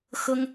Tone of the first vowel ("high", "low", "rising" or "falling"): high